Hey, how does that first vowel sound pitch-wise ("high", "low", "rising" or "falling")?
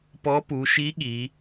rising